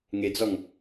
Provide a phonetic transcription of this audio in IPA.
ŋ e d͡z ɔ ŋ

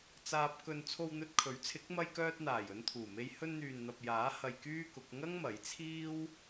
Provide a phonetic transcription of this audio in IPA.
t͡s aː˧ p̚ k ɵ˧ n t͡sʰ o˧ w n̪ ɵ˧ t̚ kʰ ɵ˨˥ ɥ t͡sʰ ɪ˨˥ k̚ m ɐ˧ j k œː˧ t̚ n̪ aː˨˩ j ɵ˧ n t̪ʰ uː˨˩ m e˧ j h ɵ˧ n n̪ yː˨ n n̪ ɐ˨ p̚ j aː˨˥ h ɐ˧ j k yː˥ k ʊ˨˥ k̚ ŋ ɐ˥ ŋ m ɐ˨˥ j t͡sʰ iː˥ w

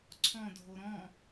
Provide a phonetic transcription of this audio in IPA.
ǀʰ ɔ̃ dʱ o ɾ ɔ̃

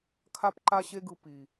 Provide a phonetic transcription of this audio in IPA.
kʰ a˦ p ǃ a˦ ɕ e˦ ɡ ɯ˧ p i˨

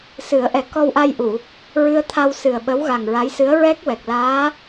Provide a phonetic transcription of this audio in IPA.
s ɨ˨˩˦ ə̯ ʔ ɛ˨˩ k ɔ˧ w ʔ a˧ j ʔ u˨˩˨ | ɹ ɨ˧ ə̯ t̪ʰ a˧ w s ɨ˨˩ ə̯ ɓ ə˧˥ w ɣ a˨˩ ŋ ɹ a˧˥ j s ɨ˧˥ ə̯ ɹ ɛ˦˥ k̚ w ɛ˨˩ k̚ l aː˧˥

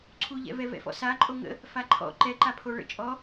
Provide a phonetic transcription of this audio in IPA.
ǀʰ u ʎ ɛ̰ v ɛ v ɛ̰ f ɔ̰ s a ǃʼ o ŋ ə̰ | f a ǃʰ ɔ̰ ǃ ɛ ǃ a pʰ o ɭ ə̰ t͡ʃʼ ɔ

